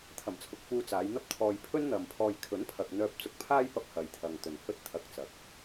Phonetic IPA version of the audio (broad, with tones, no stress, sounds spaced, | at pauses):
t̪ʰ ɐ˨˩ m t͡sʰ ʊ˨ k̚ f uː˧ t͡s aː˨˧ j n̪ ɐ˥ p̚ t̪ʰ ɔː˧ j pʰ ɵ˥ n n̪ ɐ˨ m pʰ ɔː˧ j kʰ ɵ˨˥ n pʰ ɐ˨ k̚ n̪ œː˧ p̚ t͡s ʊ˧ k̚ pʰ aː˥ j p ɐ˧ p̚ h ɐ˨ j t̪ʰ ɐ˨ ŋ t̪ ɵ˨ n h ɵ˥ t̚ t̪ʰ ɐ˧ k̚ t͡s ɐ˨ k̚